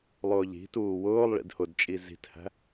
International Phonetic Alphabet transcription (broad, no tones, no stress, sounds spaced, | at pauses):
lˠ ʊː ʎ i̤ t uː w ʊː lˠ ɭ ḭ d h ʊ d t͡ʃʼ i z i̤ t h æ̤